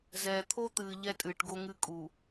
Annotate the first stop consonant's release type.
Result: aspirated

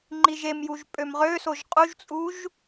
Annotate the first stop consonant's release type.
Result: click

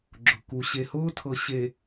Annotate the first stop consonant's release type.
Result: click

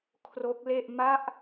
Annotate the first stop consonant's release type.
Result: aspirated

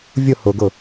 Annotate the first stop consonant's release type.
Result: plain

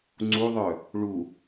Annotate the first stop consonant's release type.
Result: click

